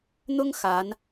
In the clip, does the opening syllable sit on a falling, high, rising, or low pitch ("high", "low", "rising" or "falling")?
high